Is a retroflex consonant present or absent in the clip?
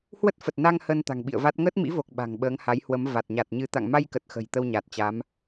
absent